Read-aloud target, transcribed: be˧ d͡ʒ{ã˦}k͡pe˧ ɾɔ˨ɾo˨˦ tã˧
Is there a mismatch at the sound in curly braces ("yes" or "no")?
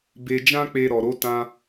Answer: no